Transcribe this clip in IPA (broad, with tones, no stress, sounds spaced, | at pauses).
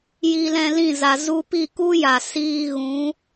j i˧ l ɛ̃˧ l ĩ˦˨ z a˨ z u˧ p i˦˨ k u˦ j a˨ s iː˧ ɣ ũ˨˦